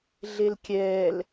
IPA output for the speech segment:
ɮ e l kʲ ɛː l

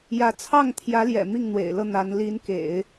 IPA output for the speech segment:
j ä˧˥ t͡sʰ ɑ˥˩ ŋ t̪ʰ j ä˧˥ l j ɛ̰˨˩ m i˥˩ ŋ n̪ w ḛ˨˩ ɪ̯ l ɤ˥˩ n̪ a˧˥ n l i˧˥ n k ḛ˨˩˦ ɪ̯

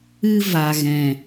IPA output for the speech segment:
ɨ˦ v a˨ ɣ ɛ̃˨

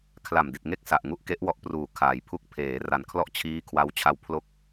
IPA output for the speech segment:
kʰ l a˨˩ m d i˨˩ t̚ ŋ e˦˥ k̚ s a˨˩ ʔ ŋ u˥˩ ʔ k e˦˥ ʔ w ɔ˦˥ ʔ p r uː˨˩ kʰ aː˩˦ j pʰ u˥˩ k̚ pʰ eː˩˦ r a˨˩ n kʰ l ɔ˥˩ ʔ t͡ɕʰ iː˦˥ kʰ w a˦˥ w t͡ɕʰ a˧ w pʰ l o˥˩ k̚

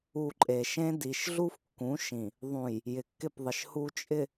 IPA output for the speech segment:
u˨ ǃʼ e˨ ʃ ẽ˦ d i˨ ʃ ɮ u˦ f kː ũ˨˦ ʃ ĩ˨ | ðˤ ũ˨ j | j ɪ˨ kː ɪ˦˨ p ðˤ ɪ˨ ʃ h u˨ t͡ʃʼ ɪ˨

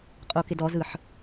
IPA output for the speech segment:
qʼ o k ɪ d ɔ z ɯ ħ

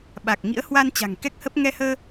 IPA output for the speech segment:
ɓ a˨˩ k̚ ŋ ḭ˧˥ ə̯ h w a˧ n t͡ɕ a̤˨˩ ŋ k ɛ˦˥ k̚ h ə˦˥ p̚ ŋ ɛ˧ h əː˧

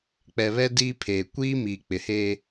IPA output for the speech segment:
k͡p ɛ˨ β ɛ˦ d iː˦ pʰ eː˨ kʷ iː˦ m iː˨ k͡p ɪ˨ h eː˦

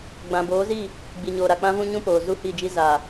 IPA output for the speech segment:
ɡ͡b ã˨ b oː˨˦ z i˦˨ | ɡ͡b i˨ ɲ oː˨ ɾ a˨ k͡p ã˦ v ũ˦ ɲ ũ˦ p oː˨ z u˦˨ h i˦˨ d͡ʒ i˦ z a˨

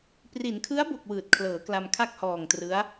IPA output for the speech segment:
p r i˩˦ n kʰ ɯ˦˥ a̯ b o˨˩ k̚ w ɯː˨˩ t̚ kʰ l ɤː˩˦ k l a˧ m kʰ a˥˩ k̚ h ɔː˨˩ ŋ t r ɯ˦˥ a̯

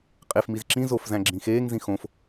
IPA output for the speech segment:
qʼ e f m i z ǁ ĩ z o f z æ̃ ɡ͡ǁ ĩ x eː ŋ z ĩ x õ f

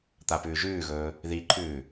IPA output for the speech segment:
t̪ a p ʉː ʒ ʉː ɣ ɵː | ð i ǃʰ ʉː

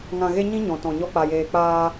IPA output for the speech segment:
ŋ ã˧ ɣ e˦ ɲ ĩ˦ ɲ ɔ̃˨ t ɔ̃˨ ɲ ɔ˧ k͡p a˨ j eː˨ k͡p aː˧

